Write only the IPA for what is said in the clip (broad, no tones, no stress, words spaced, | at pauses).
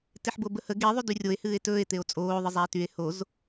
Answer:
teħbobəhə ɡe ðˤydyrʲoe̯ hɨːe̯tɵːe̯ t̪eo̯t͡sʼoː ðˤɨzˤæe̯tye̯ hoz